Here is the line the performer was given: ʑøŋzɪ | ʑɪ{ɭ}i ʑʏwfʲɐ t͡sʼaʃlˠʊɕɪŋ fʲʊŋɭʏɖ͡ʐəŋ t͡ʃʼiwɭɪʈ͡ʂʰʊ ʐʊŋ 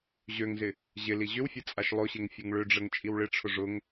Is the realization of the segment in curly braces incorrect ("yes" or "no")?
yes